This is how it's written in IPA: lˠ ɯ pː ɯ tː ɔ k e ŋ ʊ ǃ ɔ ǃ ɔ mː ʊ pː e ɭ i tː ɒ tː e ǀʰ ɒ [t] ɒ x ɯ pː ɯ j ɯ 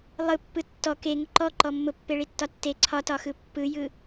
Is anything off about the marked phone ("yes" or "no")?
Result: no